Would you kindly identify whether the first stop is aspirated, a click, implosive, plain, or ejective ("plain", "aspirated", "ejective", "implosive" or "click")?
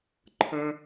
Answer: click